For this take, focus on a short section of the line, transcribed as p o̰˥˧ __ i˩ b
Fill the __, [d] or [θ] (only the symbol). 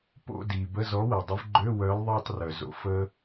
d